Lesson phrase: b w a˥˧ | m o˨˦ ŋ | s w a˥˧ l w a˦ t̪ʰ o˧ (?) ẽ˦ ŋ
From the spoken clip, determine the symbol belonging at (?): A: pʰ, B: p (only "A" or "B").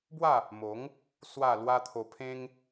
A